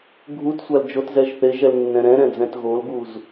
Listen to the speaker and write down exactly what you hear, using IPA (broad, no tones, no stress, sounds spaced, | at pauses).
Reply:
ɡʱ u t sʷ a l d͡ʒ o t z ɛ ʒ θ e ʒ ɛ l nː ɛ̃ ɾ ɛ̃ ɾ ɛ̃ d͡z ɛ̃ t ɣ o l ɡ u z